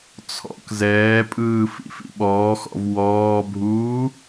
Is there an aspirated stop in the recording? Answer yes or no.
yes